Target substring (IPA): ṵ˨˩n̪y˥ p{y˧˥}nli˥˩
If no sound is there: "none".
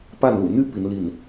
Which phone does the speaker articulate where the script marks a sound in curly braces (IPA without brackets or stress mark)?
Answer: i˧˥